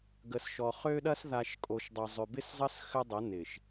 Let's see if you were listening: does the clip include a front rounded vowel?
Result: yes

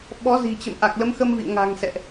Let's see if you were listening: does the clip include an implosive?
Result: yes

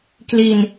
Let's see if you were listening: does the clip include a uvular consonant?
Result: no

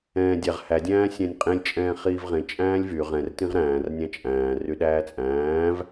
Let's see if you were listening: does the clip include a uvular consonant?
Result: yes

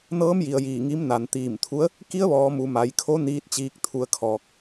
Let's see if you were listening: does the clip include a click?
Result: no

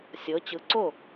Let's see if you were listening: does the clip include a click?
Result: yes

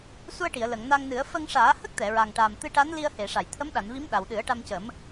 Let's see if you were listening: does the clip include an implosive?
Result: yes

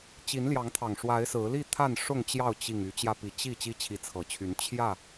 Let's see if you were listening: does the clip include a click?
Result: no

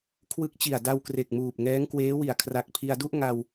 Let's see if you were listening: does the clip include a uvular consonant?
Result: no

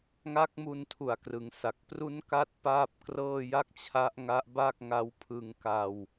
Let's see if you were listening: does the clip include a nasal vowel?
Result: no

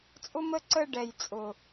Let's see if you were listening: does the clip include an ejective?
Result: yes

